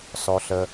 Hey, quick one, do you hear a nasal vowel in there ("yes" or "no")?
no